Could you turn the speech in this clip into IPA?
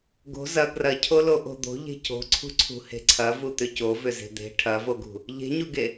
ɡ o̤ z ɐ ɡ r ɐ cʰ o l o ʔ o̤ d̪ o̤ ʎ e̤ c o̤ ǀʰ ṳ ǀʰ ṳ h e̤ ǀʰ ɐ v u t̪ ʏ c o v ʏ z e̤ d̪ e̤ ʈʰ ɐ v o ɡ ṳ | ʎ e̤ ɲ u ɡ e

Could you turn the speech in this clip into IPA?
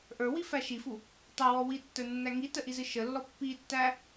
ʔ ə˞ w i f æ ʃ i f u | tˤ æ w ɔ w i tː ə˞ nː æ ŋ i t ə ʔ i z ɨ ʃ ə lː ɔ pː i tː æ

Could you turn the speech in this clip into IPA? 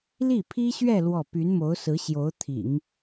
l i˥˩ pʰ i˥ ɕ ɥ ɛ˥˧ l w ɔ˥˩ p y˧˥ n m o˧˥ ʊ̯ s ɹ̩˧˥ ɕ j o˧˥ ʊ̯ t̪ʰ ḭ˨˩˦ ŋ

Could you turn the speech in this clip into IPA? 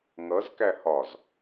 ŋ ʌ z k æ h ɒ z

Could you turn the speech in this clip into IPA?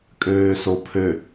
kʼ øː s o pʰ ø

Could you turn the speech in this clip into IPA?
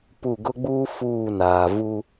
p u˦˨ ɡ ʊ˦ ɡ͡b uː˦ f uː˦˨ n aː˨ v u˦

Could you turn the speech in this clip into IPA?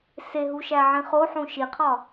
s e ɦ u ʃ æ ʕ ĩ χ o ħ ũ ʃ i qʰ ɒ

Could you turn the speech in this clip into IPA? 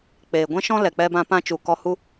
k͡p eː˨ ɡʷ ɛ̃˦ ʃ ɔ̃˦ l ɛ˨ k͡p ɛ˧ b ã˧ p ã˧ t͡ʃ u˨ k ɔ˧ h u˦

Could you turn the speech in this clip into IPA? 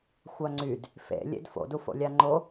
xʷ a ŋ͡ǀ y d | f ḛ lʲ ḛ d f o̰ d u f o̰ lʲ a ŋ͡ǃ o

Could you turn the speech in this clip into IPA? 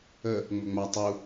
ə | ŋ͡m ɵ ŋ͡m a tˤ u

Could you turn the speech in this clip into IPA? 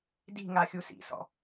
d i̤ ŋ a xʲ u s ḭ s ɔ̰

